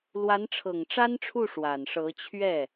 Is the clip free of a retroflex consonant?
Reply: no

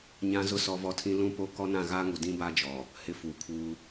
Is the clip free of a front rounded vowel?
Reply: yes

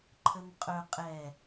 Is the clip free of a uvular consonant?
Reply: no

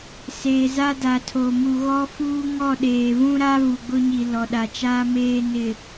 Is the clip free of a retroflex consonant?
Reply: yes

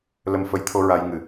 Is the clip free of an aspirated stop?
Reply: no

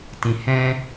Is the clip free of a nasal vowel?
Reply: no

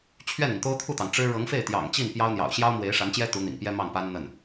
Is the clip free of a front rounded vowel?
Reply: yes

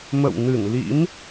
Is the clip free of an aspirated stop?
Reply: yes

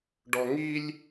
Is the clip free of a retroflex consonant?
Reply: no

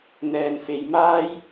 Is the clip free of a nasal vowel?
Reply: yes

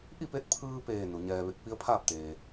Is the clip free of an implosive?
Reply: yes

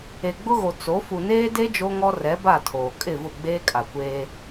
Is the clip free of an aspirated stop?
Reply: no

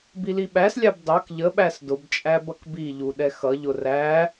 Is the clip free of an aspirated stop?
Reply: yes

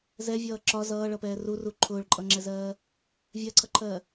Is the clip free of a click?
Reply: no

